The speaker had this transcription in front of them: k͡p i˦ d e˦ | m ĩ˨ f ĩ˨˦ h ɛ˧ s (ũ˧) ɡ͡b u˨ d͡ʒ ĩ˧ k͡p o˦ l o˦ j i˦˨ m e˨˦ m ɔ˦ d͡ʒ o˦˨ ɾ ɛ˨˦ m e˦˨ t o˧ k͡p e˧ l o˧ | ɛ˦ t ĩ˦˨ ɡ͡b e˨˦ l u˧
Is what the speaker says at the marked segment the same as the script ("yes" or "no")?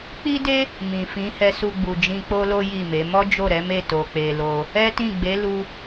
no